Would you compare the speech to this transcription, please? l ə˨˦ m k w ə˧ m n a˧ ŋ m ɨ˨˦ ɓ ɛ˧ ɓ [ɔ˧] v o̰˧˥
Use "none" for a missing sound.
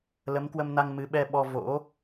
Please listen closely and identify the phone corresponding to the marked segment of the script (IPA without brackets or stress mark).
ɔ˧